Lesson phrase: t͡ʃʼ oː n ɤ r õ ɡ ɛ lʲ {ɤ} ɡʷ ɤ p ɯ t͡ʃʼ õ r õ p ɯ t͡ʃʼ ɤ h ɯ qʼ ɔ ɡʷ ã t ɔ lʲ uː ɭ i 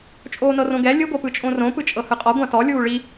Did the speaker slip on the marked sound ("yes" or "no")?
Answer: yes